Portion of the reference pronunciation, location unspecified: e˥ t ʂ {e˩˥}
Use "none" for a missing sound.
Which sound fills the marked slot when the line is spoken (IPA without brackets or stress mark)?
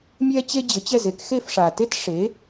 e˩˥